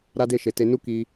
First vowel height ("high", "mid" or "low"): low